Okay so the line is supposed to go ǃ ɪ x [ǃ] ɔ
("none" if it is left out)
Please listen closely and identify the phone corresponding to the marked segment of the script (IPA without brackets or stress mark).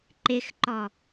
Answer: ǃ